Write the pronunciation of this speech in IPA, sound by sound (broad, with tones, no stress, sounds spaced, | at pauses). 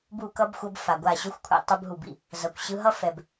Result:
b u˦˨ k ʌ˦ b xʷ ʌ˧ b f a˨ ɡʷ a˦˨ ɕ o˦ xʷ kʷʰ ɛ̰˧ tˤ ɯ˧ b ɦ u˨ b ḭ˨ | z ʌ˨ kʷ ɕ ɯ˧ ɦ ʌ˦ f ɛ˨ b